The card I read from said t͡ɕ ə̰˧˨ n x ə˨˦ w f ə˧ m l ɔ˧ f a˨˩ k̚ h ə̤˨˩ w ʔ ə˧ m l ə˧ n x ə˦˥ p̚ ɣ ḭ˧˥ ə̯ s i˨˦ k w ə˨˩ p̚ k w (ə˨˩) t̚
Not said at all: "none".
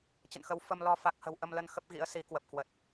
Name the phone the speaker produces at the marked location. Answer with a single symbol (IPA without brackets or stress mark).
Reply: ə˨˩